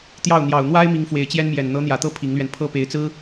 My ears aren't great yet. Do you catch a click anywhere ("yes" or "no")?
no